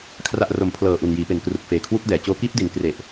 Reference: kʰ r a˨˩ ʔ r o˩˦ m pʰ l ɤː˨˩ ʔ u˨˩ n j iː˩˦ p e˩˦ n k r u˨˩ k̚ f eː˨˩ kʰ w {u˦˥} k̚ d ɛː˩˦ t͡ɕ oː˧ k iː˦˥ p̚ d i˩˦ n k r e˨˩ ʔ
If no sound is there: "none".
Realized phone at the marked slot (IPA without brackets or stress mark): u˦˥